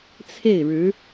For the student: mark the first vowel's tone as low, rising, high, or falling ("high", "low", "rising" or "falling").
falling